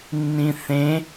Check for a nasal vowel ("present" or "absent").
present